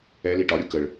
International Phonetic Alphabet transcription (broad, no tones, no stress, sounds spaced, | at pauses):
ɛ l i ʈ ɒ ɾʲ u k ə ɭ